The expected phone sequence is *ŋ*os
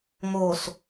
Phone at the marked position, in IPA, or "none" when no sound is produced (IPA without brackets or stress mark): ŋ